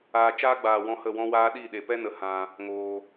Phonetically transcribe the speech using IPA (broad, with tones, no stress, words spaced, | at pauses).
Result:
aː˧t͡ʃaː˦ɡ͡baː˨wɔ̃˧ hə˦˨wɔ̃˦waː˦ ɗi˦˨ɗe˨ pɛ˦nə˨˦ hã˧ | ŋoː˧